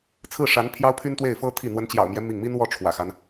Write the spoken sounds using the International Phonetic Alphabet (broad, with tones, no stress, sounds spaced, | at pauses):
t͡sʰ ɹ̩˥˩ ʂ a˧˥ n pʰ j ɑ˥ ʊ̯ pʰ y˥ n t̪ w e˥˩ ɪ̯ f ɤ˥ t̪ʰ i˥˩ n̪ w ə˧˥ n t͡ɕ j ɑ̰˨˩ ʊ̯ m j ɛ˦ m i˥˩ ŋ m i˥ n w ɔ˥˩ ʈ͡ʂʰ w ä̰˨˩ x a˦ n